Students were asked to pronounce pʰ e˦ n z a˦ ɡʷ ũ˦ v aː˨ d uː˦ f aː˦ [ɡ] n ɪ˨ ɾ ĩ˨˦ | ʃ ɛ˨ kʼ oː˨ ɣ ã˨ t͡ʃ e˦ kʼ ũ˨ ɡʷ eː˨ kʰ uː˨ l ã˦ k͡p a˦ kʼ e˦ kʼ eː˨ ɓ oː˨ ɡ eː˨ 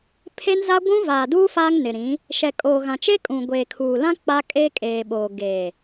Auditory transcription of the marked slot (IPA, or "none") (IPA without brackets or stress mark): ŋ